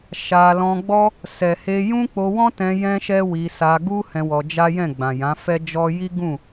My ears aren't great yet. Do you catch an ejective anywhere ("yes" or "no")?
no